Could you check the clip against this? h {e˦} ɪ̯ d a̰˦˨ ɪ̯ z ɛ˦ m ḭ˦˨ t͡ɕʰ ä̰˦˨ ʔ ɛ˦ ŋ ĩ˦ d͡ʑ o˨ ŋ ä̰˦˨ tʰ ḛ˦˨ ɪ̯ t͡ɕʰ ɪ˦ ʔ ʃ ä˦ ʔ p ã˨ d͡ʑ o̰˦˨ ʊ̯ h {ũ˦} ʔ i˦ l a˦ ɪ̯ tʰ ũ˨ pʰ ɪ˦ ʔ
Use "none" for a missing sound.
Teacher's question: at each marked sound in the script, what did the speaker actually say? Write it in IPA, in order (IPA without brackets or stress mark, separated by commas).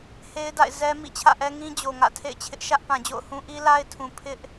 e˦, ũ˦